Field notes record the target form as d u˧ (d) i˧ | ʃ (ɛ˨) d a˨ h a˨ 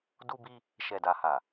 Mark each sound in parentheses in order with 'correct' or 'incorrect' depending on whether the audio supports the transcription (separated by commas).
incorrect, correct